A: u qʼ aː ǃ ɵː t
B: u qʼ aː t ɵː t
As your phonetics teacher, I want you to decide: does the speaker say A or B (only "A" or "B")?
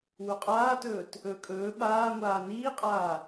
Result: B